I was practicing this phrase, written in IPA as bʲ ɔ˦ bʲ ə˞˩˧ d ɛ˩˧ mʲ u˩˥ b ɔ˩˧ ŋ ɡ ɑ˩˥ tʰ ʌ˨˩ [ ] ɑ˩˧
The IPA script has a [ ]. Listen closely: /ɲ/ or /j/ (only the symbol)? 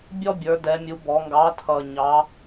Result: ɲ